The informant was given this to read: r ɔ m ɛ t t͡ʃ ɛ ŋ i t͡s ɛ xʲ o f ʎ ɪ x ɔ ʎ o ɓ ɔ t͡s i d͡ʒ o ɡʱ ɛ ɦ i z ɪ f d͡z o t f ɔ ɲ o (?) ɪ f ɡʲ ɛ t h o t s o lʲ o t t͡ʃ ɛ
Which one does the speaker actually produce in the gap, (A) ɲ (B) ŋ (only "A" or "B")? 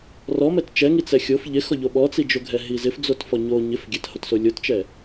A